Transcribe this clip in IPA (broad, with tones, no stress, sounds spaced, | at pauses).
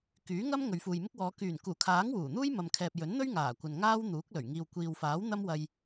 k yː˨˥ ŋ ɐ˥ m ŋ ɵ˨ ɥ f uː˨ j m ɪ˥ k̚ w ɔː˨˧ k yː˨˩ n k uː˨˩ kʰ aː˨˥ ŋ w uː˨˩ n̪ uː˥ j m ɐ˨ m kʰ ɛː˨ p̚ j ɵ˨˥ n n̪ ɵ˥ ɥ ŋ aː˨˩ kʷ ɐ˨ n ŋ aː˥ w n̪ uː˨˥ k̚ l ɵ˨˩ ɥ ŋ iː˨ w kʷ iː˨ w f aː˨˥ w n̪ ɐ˥ m w ɐ˧ j